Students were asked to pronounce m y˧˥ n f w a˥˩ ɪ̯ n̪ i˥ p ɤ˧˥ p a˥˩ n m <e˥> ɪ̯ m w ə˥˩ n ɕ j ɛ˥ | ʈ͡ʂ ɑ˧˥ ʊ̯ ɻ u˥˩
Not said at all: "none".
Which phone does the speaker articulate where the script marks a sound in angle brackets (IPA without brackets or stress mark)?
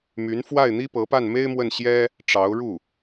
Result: e˥